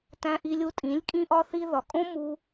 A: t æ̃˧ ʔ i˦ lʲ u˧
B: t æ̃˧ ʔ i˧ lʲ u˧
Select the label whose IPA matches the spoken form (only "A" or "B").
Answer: B